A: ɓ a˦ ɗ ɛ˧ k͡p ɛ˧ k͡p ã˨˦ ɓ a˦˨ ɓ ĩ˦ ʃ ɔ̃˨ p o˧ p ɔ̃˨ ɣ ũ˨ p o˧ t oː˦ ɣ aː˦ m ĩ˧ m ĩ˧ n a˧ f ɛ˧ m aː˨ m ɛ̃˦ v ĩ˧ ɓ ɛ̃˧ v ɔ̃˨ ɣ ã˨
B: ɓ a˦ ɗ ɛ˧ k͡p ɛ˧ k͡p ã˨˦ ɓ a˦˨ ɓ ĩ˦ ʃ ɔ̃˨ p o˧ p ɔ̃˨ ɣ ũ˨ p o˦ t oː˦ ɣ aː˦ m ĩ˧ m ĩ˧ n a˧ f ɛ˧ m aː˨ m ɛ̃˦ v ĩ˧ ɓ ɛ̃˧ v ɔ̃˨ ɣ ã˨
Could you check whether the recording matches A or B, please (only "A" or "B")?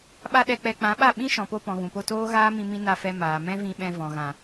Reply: A